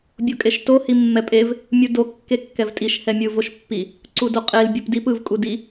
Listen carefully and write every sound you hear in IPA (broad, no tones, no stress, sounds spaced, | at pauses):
bʲ o kʼ e ʃ t o h i mː ɛ pʼ e v | mʲ u d o kː e kː ɛ v tʼ i ʃ h ɛ mʲ ɯ v o ʃ pː i | ǀ u d o qʼ e l bʲ ɯ p d i p ɯ v kʼ u d i